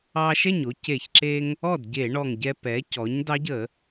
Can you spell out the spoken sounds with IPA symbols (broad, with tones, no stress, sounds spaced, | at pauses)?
ɑ˧ ʃ ɛ˥˩ ɲ o˧ c e˧˩˧ ç ǁ e˧ ŋ | ɔ˥˩ d ɟ e˧˩˧ ɳ ɔ˧˩ ŋ ɟ ɛ˧ p ɛ˩˥ c ɔ˩˥ ɲ d ɑ˧˥ ɟ ə˧˩˧